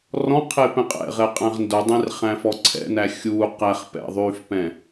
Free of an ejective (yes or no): no